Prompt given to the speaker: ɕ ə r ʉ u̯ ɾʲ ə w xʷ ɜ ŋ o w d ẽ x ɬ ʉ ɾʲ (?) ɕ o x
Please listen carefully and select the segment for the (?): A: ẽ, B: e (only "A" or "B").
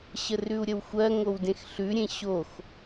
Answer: A